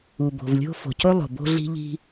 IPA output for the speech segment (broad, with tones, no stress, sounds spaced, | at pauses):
u˩ b o̤˩ v lʲ o̤˥ f o̤˩ c o˥ lˠ o̤˩ b o̤˥ ɮ i̤˥ ʎ i̤˥